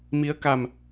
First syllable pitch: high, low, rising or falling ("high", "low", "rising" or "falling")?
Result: rising